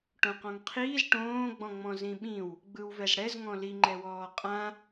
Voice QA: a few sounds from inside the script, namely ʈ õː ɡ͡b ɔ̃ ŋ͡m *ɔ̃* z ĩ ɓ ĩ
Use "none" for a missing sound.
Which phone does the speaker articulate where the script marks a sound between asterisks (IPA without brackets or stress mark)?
ɔ̃